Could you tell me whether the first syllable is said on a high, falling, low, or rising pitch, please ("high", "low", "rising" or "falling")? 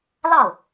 falling